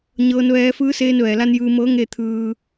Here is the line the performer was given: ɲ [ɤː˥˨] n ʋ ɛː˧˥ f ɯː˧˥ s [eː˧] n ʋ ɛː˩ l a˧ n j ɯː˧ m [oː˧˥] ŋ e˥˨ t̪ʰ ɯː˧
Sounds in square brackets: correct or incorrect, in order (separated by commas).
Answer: incorrect, correct, incorrect